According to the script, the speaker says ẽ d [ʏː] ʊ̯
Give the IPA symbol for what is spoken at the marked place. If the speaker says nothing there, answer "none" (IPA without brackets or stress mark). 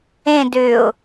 ʏː